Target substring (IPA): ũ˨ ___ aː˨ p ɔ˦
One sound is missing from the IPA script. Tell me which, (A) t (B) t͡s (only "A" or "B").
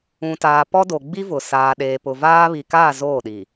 A